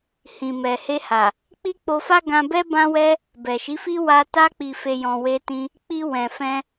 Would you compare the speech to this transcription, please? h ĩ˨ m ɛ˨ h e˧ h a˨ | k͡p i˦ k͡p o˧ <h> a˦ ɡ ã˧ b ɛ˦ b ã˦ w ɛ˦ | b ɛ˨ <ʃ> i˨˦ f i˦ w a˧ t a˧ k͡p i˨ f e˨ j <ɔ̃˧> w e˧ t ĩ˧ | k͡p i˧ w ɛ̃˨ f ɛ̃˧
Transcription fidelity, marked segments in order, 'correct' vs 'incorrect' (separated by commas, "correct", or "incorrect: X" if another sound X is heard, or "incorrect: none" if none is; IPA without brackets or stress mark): incorrect: f, correct, incorrect: ɔ̃˨